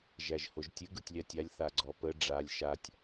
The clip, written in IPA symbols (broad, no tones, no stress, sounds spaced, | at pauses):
ʒ æ ʒ h o ʒ tʲ ɨ ɡ ɯ tʲ lʲ a tʲ a lʲ θ a ɡ͡ǀ ɔ p ə ɖ͡ʐ a lʲ ʃ a tʲ